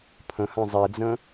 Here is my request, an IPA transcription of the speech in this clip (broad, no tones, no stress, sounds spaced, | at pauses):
pʰ ə̃ h ã zˤ i d͡z ə̃